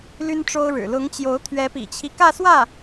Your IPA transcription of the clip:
l y˥ n ʈ͡ʂ o˥ ʊ̯ ɻ ɻ̩˨˩ l ʊ˧˥ ŋ t͡ɕ j o˧˥ ʊ̯ t̪ʰ ɥ ɛ˧˥ p ḭ˨˩ t͡ɕʰ i˦ k ä˥˧ s w ä˥˩

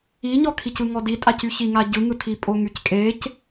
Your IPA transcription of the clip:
i ɲ ɔ kʰ i c ɯ ŋ ɔ d i tʼ a c y ç i ŋ a ɟ ɯ ŋ ɯ tʰ i pʼ o ŋ y c kʼ e c

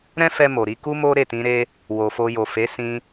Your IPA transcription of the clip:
ɾ ɛ̃˦ f ɛ˧ m o˨ ɾ i˧ k u˦ m o˦ ɾ e˦˨ t ĩ˨˦ ɾ e˦ | w o˨ f o˧ j o˨ f e˨˦ s ĩ˧

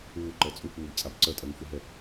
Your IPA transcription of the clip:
uː ǃ ɜ t͡sʼ u k͡p uː b t͡sʼ a b ǀ ɜ tʼ ɜ ŋ f u ɦ ɛ

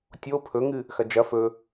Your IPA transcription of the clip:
tʲ o pʰ ɵ ŋ ɨ | x ɐ d͡ʒ ɐ f ɵ

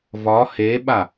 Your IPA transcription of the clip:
v ɒ h e ɓ a

